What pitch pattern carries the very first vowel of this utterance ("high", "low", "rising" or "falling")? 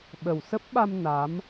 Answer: low